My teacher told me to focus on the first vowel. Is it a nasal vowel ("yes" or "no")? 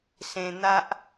yes